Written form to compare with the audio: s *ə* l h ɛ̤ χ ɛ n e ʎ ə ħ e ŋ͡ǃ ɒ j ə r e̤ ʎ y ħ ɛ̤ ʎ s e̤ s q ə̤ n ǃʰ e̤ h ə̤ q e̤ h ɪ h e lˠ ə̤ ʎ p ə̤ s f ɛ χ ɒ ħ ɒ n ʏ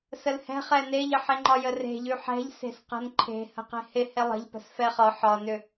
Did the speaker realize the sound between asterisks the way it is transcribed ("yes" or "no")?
yes